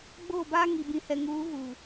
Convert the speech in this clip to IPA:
ɡ͡b oː˦˨ b aː˦ ŋ i˨ b ĩ˨ h ɛ˨ ŋ uː˨˦ ɣ u˨

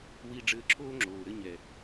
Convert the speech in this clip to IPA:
w i˧ ɖ͡ʐ ɘː˧ ǁʰ oː˦ ŋ͡ǁ oː˨ ɾ ɘ˧ ɲ ɛ˨

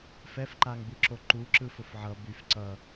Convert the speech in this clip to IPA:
f ɛ f ǃ a ŋ b ɯ ǁ o ǃ u ǁ ɯ f ʊ f ʕ ʌ b y f ǀ ʌ

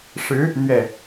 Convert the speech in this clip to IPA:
ʂ ɻ̩˧˥ | n̪ ɥ ɛ˥˩

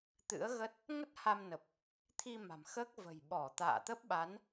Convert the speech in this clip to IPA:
t̪ ɨ̰˧˥ ə̯ ɣ ə˦˥ t̚ | ŋ ə˦˥ t̚ h a˧ m n ə˨˩ p̚ | t̪ʰ i˧ m a̤˨˩ m x əː˦˥ k̚ v ə̤˨˩ j ɓ ɔ˧˩ t̪ a̰ː˧˨ t̪ ə˦˥ p̚ ɓ a˨˦ n

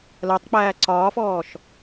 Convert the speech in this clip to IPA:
l ɜ tˤ k͡p æː ǀ ɒː f ɔː ʃ

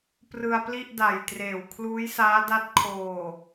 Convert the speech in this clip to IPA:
p r ɯ˧ a̯ p l i˥˩ ʔ d a˨˩ j t r eː˨˩ w kʰ l uː˦˥ j s aː˦˥ d a˦˥ t̚ kʰ oː˨˩

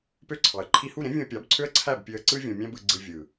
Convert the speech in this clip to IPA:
p ø˦ ǀʰ ɑ˨ ə̯ ǃʰ i˧ h u˦˨ ɾ ẽ˦ vʲ ũ˧ ə̯ pʲ ɑ˨˦ b ǀʰ ø˦ ə̯ ǀʰ æ˦˨ b pʲ ø˧ ə̯ ǀ ɯ˦ vʲ õ˧ mʲ æ̃˦ b ɯ˧ ɡ͡ǀ ɯ˧ vʲ ɯ˨

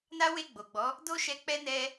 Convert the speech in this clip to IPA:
n a˦ w e˦˨ ɡ͡b o˨ ɡ͡b ɔ˨˦ | d o˦ ʃ ɛ˧ k͡p ɛ˧ n ɛ˧

